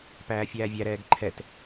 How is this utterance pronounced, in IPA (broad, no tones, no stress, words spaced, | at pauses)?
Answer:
pæːfʲæːvʲæɾɛːɡ ǃʰɛt